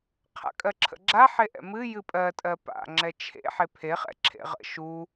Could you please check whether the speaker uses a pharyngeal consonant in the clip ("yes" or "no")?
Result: yes